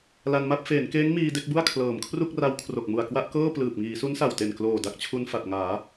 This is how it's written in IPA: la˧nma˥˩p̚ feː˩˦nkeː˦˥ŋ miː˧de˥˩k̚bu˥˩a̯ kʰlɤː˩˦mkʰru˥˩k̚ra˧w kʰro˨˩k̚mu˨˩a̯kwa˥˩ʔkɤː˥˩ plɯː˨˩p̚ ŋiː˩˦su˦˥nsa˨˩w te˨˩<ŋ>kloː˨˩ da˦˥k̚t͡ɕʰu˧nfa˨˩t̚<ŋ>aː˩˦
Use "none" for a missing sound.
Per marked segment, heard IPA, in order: n, ŋ

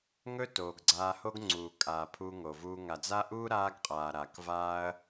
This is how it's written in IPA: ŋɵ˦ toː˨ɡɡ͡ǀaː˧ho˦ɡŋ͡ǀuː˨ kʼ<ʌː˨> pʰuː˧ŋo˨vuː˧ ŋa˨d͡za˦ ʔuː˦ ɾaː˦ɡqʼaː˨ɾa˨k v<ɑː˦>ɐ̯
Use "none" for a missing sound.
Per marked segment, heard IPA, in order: aː˨, aː˦

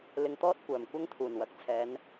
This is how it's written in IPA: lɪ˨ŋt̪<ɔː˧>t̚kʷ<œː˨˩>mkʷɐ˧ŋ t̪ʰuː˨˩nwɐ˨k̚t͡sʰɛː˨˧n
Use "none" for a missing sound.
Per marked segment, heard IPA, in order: ɔː˧, œː˨˩

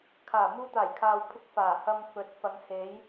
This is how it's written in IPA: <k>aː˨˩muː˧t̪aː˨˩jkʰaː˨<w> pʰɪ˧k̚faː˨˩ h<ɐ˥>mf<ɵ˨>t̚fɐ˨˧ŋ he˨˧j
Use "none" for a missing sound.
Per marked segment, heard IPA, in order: kʰ, w, ɐ˧, ɵ˨˥

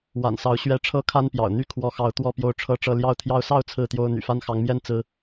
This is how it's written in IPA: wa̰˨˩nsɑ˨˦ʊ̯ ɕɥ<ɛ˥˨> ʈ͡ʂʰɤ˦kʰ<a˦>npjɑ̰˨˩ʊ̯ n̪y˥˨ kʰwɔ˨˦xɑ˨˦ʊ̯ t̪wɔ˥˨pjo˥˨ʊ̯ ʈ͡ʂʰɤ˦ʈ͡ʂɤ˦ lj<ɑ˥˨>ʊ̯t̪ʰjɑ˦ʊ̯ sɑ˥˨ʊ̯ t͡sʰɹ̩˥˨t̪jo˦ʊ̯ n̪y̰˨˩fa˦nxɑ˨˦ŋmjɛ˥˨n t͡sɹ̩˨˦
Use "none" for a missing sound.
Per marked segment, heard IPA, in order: ɛ˨˦, a˦, ɑ˥˨

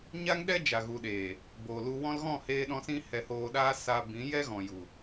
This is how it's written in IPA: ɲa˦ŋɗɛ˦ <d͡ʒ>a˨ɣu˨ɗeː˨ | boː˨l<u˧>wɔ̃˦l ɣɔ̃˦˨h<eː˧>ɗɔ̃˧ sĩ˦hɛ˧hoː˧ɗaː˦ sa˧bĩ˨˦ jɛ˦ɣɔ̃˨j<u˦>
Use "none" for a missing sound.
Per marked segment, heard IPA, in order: d͡ʒ, u˧, eː˧, u˨

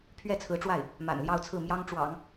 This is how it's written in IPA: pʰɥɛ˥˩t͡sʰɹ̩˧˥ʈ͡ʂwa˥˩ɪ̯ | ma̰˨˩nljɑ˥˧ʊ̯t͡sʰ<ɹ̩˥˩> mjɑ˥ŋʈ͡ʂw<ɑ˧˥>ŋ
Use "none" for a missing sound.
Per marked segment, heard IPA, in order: ɹ̩˥˩, ɑ̰˨˩˦

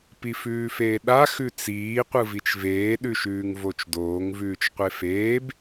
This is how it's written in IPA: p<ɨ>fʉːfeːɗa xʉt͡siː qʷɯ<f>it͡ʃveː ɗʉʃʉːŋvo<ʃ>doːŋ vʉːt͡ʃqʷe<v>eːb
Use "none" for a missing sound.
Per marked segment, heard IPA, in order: i, v, t͡ʃ, f

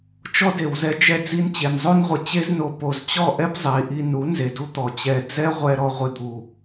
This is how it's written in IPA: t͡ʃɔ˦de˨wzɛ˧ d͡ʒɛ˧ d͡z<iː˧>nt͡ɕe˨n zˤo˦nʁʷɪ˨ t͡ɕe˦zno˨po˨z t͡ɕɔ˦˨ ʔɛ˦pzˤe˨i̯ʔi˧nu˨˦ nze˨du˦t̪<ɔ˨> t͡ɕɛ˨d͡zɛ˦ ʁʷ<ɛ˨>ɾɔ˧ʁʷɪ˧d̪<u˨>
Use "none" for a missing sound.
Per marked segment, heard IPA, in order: i˧, ɔ˨, ɛ˦, u˨

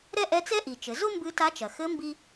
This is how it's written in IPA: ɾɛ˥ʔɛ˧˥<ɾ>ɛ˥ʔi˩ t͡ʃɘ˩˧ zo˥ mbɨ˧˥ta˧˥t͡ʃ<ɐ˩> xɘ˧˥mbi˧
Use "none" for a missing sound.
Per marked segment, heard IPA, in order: t͡s, ɐ˩

